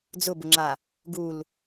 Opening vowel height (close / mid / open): close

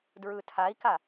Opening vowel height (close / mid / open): close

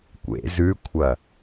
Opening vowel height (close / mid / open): mid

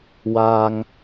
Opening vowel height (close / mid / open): open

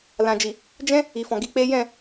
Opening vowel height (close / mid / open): open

